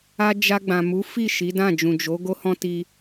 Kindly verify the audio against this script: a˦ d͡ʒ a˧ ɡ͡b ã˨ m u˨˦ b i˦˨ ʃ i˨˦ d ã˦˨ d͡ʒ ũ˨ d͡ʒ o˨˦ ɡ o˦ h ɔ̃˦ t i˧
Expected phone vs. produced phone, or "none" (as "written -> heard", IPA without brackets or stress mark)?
b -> f